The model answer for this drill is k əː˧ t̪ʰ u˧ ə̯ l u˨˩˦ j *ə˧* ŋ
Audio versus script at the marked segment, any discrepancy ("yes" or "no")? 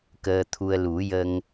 no